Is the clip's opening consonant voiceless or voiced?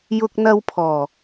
voiced